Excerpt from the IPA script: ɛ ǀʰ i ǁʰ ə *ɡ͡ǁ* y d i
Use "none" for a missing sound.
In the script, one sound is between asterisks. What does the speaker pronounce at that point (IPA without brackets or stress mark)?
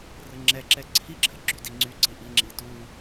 ɡ͡ǁ